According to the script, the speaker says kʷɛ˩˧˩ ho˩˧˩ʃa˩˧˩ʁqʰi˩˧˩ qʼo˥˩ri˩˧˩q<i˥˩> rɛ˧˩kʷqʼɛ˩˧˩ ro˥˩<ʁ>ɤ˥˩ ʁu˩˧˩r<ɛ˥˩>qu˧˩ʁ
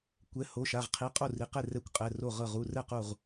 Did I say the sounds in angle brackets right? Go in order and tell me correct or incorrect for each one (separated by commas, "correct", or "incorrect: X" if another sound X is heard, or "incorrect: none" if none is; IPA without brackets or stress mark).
incorrect: e˥˩, correct, correct